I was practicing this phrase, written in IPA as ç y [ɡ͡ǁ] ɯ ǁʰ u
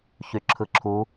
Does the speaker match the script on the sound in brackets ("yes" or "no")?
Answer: no